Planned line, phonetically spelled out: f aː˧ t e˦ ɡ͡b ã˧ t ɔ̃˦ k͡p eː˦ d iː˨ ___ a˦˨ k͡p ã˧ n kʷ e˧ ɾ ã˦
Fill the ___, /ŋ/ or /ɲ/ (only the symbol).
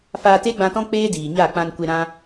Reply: ɲ